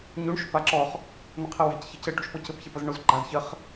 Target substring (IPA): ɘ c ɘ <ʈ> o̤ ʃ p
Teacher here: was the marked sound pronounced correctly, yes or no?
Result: yes